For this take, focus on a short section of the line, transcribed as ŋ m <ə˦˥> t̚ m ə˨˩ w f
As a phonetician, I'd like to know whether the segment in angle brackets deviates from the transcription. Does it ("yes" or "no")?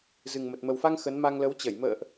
yes